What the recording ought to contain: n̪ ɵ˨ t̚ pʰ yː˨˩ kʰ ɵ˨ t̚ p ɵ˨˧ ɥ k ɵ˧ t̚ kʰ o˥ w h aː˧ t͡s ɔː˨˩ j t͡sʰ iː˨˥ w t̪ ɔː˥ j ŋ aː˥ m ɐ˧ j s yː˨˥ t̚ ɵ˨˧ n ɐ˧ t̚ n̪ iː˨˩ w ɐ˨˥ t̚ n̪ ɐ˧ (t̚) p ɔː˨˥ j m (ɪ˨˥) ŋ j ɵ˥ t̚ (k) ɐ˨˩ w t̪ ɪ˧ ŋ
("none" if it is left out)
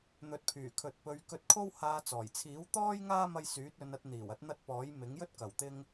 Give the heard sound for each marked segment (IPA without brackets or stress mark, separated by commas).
t̚, ɪ˨˥, k